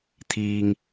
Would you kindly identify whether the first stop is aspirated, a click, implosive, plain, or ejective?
aspirated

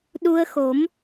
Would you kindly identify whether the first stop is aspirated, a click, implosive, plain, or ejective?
implosive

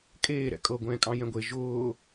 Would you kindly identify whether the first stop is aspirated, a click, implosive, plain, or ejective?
ejective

